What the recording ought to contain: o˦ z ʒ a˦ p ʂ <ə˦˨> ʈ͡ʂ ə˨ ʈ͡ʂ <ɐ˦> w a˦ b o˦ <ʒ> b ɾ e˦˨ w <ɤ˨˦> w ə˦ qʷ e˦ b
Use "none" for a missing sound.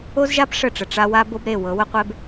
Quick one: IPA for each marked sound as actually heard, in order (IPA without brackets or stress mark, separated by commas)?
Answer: ə˦˨, a˦, none, ɤ˨˦